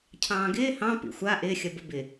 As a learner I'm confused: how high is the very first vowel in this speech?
low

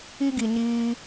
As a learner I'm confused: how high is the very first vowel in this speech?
high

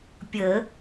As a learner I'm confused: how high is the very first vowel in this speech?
mid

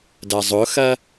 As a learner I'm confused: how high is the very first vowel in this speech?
low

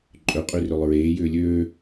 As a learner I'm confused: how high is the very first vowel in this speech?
mid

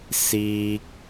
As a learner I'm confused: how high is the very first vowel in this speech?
high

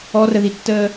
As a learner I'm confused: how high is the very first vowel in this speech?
mid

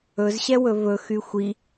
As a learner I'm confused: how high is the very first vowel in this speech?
mid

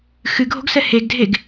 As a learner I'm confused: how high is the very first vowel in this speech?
high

